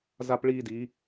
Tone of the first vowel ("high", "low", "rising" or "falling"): high